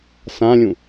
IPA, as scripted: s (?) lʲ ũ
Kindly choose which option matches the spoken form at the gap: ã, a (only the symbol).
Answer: ã